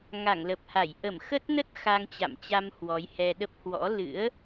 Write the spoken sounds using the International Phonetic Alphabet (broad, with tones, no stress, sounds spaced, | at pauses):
ŋ a˧˩ ŋ l ə˨˩ p̚ h a˧˩ j ʔ ə˧˩ m x ə˦˥ t̚ n ə˦˥ t̚ x a˧ ŋ t͡ɕ a̰˧˨ m t͡ɕ a˧ m h w ɔ˨˦ j h ɛ˧ ɗ ə˦˥ p̚ h w ɔ̰˧˥ l ɨ̰˧˥ ə̯